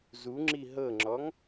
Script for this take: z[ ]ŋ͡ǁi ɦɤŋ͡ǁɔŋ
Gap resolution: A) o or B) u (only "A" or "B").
B